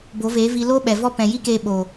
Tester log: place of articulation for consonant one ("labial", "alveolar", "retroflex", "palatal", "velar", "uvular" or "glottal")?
labial